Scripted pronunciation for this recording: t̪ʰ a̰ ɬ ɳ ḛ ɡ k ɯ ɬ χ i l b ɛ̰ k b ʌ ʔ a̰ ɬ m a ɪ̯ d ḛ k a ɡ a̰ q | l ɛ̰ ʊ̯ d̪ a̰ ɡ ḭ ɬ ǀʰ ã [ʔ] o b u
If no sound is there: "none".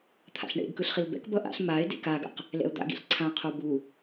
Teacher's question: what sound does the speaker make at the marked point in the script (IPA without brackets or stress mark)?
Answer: qʰ